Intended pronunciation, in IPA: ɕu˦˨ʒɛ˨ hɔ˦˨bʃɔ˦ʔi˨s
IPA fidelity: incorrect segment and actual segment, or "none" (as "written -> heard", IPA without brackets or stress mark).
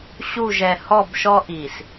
none